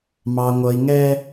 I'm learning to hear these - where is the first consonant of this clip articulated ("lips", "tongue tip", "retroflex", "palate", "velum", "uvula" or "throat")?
lips